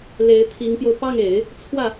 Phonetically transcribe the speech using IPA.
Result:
l e˧˥ ɪ̯ t̪ʰ i˧˥ ŋ p j o˧ ʊ̯ p ɑ˥˩ ŋ e˨˩˦ ɪ̯ | t͡sʰ w ä˥˩

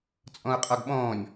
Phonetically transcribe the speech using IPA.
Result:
t͡sʼ ɔ̃ u̯ qʼ ɔ ɡ ɓ ɔ̃ː nʲ

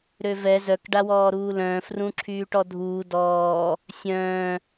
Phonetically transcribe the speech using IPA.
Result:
ɾ ø v ɛ z œ k ɖ a w ɔː ɾ uː l œ̃ː f r ũ ǁʰ yː ʈ ɔ dʱ uː d ɔː | sʲ œ̃ː

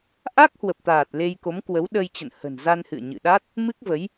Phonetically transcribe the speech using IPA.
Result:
ʔ a˦˥ k̚ h w ə˨˩ p̚ t̪ aː˨˩ t̚ l e˧ j k o˨˦ m k w ə˨˦ w ɗ ə˧ j t͡ɕ ə̰˧˨ n h ə̤˨˩ n z a˧ n h ɨ̰˧˨ ə̯ ɲ ɨ̰˧˨ ɗ a˦˥ t̚ | m ɨ˦˥ k̚ v ə˨˦ j

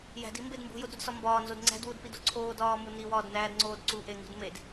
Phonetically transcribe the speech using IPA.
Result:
j æ̤ d i m b e d m b ṳ j o d ɾ u d s ɒ m b ɒː n z o d ŋ͡ǀ æ̤ d w u d p i d o ǀʰ oː d ɒː m u n i w ɒː d n æː d ŋ͡ǀ oː d ǀ u ʔ e ŋ ṳ d m e d

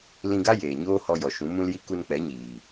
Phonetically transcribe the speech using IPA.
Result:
l ĩ˧ ɡ a˦ j eː˨ ɲ oː˦ h ɔ˧ j ɔ˨ ʃ ũ˨˦ m ũ˦ l j i˦ k u˧ n k͡p ɛ˨˦ ɲ iː˨

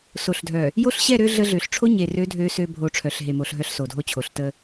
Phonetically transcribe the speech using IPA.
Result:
s o˨ ɬ dʱ œ˨ | j o˦ ɬ ɕ ɛ˦˨ ɾ ø˦ ɮ ə˦ ɮ ø˨ ɬ ʈ͡ʂʰ o˦ ɲ e˨ r ø˨˦ dʱ ø˨˦ s ø˦ bʱ o˨˦ ʈ͡ʂʰ œ˨ ɬ ɦ e˨ m o˨ ɬ ɦ œ˦ ɬ s o˨ dʱ o˦ t͡ɕʰ o˨ ɬ t ə˦

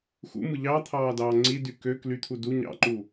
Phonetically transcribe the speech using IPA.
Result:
x ṵ m ɯ ʎ ɑ t̪ʰ ɑː d ɑː ŋ͡ǀ i d y k ø k l y t̪ʰ u d u ɲ ɑ̰ ǃ u

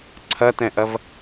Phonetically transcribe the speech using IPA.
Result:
ǀʰ ɐ t ɛ̃ ʔ ɐ v

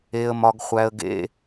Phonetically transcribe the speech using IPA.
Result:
e˧ ə̯ m ɒ˧ ɡ χʷ æ˧ ə̯ ɡ ḛ˧˥˧

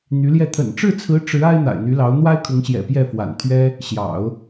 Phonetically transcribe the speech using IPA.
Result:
n̪ y˧˥ l j ɛ˥˩ t̪ʰ ə̰˨˩ n ʈ͡ʂ ɻ̩˥˩ t͡sʰ ɹ̩˧˥ ʈ͡ʂ ɻ̩˧˥ a˥ ɪ̯ n̪ a̰˨˩ ɪ̯ n̪ y˧˥ l ɑ˧˥ ʊ̯ n̪ w a˥ ɪ̯ kʰ ʊ˧˥ ŋ ɕ j ɛ̰˨˩ p j ɛ˥˩ f w a̰˨˩ n t̪ʰ ɥ ɛ˥ | ɕ j ɑ̰˨˩˦ ʊ̯

